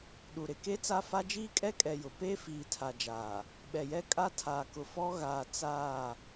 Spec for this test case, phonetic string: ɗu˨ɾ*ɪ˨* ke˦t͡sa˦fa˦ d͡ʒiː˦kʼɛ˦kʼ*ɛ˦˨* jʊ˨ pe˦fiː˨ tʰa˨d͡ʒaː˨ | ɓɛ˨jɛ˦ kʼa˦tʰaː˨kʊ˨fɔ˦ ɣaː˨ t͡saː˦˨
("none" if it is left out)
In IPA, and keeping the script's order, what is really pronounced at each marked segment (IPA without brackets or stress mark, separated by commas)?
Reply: ɪ˨, ɛ˨